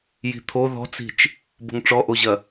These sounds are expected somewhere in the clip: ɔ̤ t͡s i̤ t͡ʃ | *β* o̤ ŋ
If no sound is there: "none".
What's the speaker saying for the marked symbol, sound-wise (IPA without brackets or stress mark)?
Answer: b